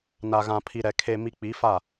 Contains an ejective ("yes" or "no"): no